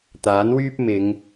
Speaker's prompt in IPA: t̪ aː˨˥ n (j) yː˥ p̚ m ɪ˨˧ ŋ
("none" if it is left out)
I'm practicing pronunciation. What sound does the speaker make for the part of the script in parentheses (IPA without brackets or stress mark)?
w